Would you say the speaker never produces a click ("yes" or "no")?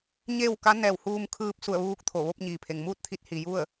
yes